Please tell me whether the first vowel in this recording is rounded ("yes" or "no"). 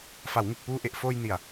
no